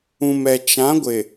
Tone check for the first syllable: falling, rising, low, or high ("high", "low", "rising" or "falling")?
low